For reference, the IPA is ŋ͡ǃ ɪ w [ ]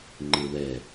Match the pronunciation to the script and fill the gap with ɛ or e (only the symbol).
ɛ